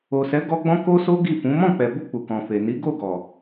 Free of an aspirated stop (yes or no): yes